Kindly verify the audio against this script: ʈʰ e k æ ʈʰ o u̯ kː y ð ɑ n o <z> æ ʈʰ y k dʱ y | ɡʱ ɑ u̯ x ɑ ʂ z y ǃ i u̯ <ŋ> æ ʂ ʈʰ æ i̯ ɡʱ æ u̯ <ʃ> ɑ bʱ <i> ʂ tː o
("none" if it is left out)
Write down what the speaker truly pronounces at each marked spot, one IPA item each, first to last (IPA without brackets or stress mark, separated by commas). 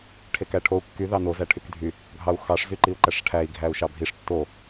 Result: z, ǃ, ʃ, i